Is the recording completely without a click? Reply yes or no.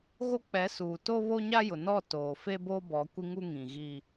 yes